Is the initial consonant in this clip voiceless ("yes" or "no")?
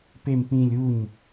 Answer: yes